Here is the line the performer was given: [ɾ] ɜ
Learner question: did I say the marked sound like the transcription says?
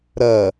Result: yes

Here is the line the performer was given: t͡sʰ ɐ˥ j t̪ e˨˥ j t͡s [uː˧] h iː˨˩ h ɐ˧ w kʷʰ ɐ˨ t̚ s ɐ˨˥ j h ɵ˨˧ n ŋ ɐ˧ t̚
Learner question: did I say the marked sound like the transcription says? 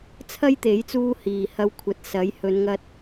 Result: yes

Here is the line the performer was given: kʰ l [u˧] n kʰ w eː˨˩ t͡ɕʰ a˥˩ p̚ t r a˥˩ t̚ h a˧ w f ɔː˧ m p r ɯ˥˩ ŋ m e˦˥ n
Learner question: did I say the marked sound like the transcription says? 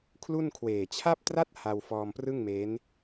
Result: no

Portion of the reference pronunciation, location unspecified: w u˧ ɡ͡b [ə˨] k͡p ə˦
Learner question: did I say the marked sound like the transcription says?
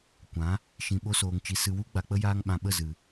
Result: no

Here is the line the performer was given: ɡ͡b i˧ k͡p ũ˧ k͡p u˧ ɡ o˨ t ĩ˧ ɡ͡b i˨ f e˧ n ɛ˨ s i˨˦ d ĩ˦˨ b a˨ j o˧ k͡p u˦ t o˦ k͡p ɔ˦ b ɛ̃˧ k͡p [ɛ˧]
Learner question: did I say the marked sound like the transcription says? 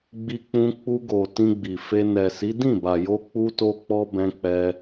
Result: yes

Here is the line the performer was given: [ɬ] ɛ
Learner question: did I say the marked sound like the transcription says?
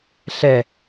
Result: yes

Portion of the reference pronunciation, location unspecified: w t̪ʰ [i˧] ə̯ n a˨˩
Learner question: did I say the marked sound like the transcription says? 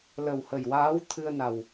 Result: no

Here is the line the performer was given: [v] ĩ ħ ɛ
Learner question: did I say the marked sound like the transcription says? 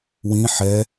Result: no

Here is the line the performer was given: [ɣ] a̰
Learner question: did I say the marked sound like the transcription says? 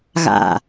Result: yes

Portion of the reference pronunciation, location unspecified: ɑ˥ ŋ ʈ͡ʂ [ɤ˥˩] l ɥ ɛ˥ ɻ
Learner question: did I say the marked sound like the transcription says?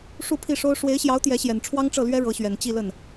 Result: yes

